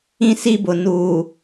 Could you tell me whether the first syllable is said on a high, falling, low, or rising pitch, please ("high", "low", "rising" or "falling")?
high